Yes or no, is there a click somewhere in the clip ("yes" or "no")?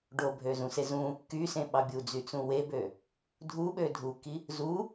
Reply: no